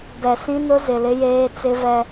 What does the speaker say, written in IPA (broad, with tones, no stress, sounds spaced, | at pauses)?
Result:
b ɛ˨ s ĩ˦ n ʊ˦ z ɪ˨ l ɪ˦ j eː˦ t͡s ɪ˦ v ɛ˦